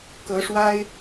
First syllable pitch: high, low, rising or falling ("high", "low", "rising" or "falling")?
rising